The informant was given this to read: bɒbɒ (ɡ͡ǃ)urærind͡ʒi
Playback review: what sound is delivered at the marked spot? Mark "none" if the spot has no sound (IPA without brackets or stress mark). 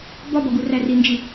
ɡ